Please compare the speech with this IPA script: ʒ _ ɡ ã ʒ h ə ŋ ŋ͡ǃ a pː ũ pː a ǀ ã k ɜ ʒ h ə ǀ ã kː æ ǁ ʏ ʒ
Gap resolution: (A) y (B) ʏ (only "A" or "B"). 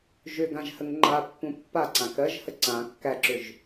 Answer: B